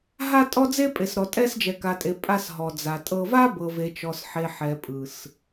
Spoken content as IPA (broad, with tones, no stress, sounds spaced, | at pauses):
ɦ a˦ tʼ ɔ˦ d͡z e˦ pʼ e˨ s ɾ ɔ˨ tʼ ɛ˦ s d͡ʒ ɛ˨ k a˨ tʼ e˨ pʼ a˦ s ɦ ɔ˨ d͡z a˨ tʼ ɤ˦ v a˦ b ɤ˨ v e˨ t͡ʃ ɔ˨ s ħ e˨ ħ ɛ˨ pʼ ɯ˨ s